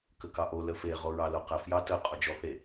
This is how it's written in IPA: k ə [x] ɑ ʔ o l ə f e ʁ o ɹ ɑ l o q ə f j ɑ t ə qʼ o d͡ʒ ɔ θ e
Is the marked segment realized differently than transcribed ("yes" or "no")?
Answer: yes